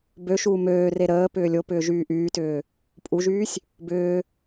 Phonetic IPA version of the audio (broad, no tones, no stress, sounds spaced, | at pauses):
b ø ʃ uː m øː r e ɾ əː p ʏː lʲ o p ʏː ʒ yː ʔ yː t ʏː | pʼ u ʒ yː sʲ | b ʏː